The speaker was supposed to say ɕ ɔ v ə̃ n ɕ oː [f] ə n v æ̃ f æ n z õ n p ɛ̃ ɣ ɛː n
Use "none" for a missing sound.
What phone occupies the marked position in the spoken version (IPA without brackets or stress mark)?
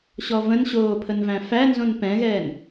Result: pʰ